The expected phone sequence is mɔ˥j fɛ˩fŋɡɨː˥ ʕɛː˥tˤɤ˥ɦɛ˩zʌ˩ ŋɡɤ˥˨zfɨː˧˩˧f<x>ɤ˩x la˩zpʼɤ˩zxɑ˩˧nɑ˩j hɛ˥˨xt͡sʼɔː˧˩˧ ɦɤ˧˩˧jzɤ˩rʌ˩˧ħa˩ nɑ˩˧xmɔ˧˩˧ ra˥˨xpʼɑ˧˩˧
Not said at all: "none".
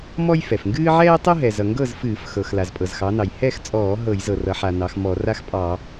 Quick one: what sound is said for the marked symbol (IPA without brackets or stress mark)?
x